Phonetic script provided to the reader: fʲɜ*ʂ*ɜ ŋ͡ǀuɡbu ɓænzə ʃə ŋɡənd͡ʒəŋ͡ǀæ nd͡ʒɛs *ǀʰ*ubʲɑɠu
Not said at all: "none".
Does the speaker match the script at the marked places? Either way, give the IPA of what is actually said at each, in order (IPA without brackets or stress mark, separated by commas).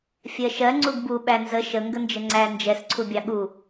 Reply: ʃ, ǀʰ